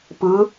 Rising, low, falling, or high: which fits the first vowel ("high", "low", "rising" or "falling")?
rising